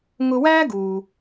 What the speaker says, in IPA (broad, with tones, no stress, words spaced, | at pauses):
ŋʊ˧wæː˥ɡuː˩